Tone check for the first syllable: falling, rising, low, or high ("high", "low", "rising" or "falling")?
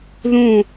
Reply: falling